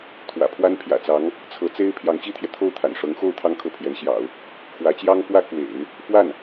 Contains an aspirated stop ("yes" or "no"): yes